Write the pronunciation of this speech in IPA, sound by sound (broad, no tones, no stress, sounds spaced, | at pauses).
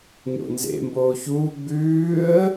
ɲ o̰ n z ḛ m b oː ç uː ɡ͡b ʉː ə̯